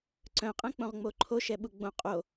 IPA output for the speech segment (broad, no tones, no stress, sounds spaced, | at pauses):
ǀ œ̃ qʼ ɛ̃ k͡p õ ʁ ŋ͡m o ǃʰ o ʃ ɛ ɓ u ɡ͡b õ qʼ o